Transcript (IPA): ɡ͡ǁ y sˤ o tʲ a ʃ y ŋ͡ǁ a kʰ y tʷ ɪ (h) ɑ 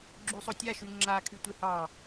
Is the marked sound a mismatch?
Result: no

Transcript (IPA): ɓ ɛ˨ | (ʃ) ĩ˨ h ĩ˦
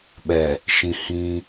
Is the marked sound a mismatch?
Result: no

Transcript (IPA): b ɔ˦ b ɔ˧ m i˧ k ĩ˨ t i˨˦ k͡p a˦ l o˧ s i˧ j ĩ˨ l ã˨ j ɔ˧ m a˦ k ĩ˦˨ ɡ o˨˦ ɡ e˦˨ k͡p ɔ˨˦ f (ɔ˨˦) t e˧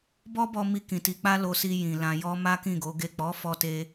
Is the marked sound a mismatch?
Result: yes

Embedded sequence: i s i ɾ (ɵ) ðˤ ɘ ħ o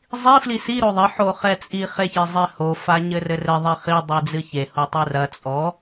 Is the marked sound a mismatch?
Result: yes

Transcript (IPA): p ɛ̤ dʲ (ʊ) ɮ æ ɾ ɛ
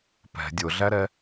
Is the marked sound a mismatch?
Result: no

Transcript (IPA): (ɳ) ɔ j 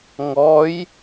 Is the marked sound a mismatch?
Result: yes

